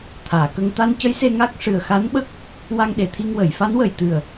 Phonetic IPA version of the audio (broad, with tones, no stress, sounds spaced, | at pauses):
t̪ʰ aː˨˩˨ k ə˧ ŋ t̪ a˧ n c ə˧˥ j s e˧ ŋ a˦˥ k̚ ʂ ɨ˨˩ ə̯ x a˧˥ n ɓ ə˦˥ k̚ | w a˧ ŋ ɗ e˨˩˨ t̪ʰ i˧ ŋ w ə˨˩˨ j f a˧˥ n w ə˨˩ j t̪ ɨ˨˩ ə̯